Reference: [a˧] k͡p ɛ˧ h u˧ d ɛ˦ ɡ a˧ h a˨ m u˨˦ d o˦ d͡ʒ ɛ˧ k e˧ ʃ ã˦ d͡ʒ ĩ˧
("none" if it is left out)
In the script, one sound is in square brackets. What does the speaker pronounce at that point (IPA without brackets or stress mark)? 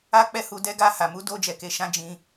a˧